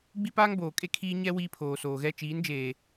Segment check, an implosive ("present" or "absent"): absent